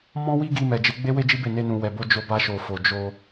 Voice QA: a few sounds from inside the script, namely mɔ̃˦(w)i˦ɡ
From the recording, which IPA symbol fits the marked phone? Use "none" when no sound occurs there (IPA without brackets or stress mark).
w